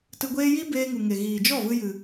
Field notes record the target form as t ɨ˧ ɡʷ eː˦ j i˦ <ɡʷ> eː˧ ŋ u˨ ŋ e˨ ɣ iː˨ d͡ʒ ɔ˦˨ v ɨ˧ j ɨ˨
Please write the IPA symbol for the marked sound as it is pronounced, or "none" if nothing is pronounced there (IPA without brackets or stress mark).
b